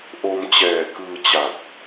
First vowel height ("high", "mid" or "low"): mid